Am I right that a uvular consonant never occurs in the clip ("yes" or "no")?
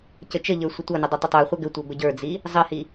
no